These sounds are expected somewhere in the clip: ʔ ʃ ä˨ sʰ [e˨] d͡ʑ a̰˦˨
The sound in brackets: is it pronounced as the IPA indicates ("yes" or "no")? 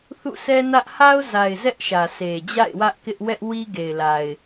yes